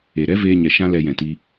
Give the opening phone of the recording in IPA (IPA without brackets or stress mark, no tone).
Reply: e